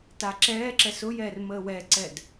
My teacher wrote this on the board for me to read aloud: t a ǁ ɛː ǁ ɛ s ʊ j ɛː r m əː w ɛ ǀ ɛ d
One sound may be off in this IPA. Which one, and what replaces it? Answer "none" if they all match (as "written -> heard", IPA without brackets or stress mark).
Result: none